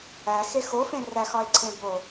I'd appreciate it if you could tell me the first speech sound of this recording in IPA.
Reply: æ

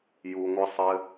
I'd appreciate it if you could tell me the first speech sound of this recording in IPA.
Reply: j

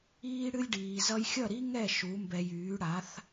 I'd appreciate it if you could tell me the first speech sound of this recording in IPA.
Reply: iː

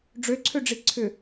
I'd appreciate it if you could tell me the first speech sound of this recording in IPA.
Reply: ɖ͡ʐ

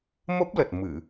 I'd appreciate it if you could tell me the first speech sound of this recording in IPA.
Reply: m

